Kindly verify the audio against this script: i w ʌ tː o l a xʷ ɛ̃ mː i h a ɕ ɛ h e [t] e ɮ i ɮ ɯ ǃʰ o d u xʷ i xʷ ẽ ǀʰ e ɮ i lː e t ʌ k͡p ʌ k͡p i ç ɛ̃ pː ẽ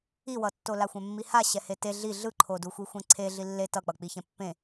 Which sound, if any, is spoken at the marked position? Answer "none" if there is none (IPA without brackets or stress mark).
t